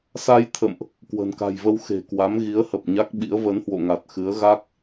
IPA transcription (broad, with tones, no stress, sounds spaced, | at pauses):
s a˧ j t̪ʰ ə̰˧˨ m ʔ | k w ə̤˨˩ n k a̤˨˩ j v ə˧ w x e̤˨˩ k w a˨˦ m ɣ i˨˦ ə̯ h ə˨˩ p̚ ɲ a˦˥ k̚ ɓ ḭ˧˥ ə̯ v ə˨˦ n h w o̰˧˨ ŋ a˨˩ t̚ x ɨ˨˦ ə̯ ɣ a˦˥ k̚